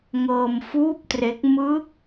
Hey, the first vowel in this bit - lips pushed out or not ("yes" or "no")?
no